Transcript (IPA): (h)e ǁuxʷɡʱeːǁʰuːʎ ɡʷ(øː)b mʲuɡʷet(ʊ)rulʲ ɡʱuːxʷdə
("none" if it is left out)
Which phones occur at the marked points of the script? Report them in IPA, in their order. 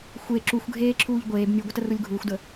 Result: xʷ, eː, ə

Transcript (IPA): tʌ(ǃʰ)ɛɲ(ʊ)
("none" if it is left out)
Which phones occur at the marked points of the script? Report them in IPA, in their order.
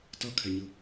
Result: kʰ, ɯ

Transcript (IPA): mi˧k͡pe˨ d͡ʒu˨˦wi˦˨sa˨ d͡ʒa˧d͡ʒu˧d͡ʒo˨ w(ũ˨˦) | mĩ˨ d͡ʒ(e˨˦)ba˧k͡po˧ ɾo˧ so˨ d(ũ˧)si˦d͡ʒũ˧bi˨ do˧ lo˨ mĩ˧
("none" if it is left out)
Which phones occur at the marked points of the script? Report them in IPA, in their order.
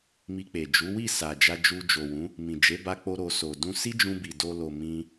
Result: ũ˨˦, e˨˦, ũ˧

